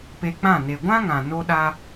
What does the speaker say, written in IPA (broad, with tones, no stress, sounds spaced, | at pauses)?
p e˧ k͡p ã˦˨ n e˨ ɡʷ ã˦ ŋ ã˨ n o˦ ɗ a˦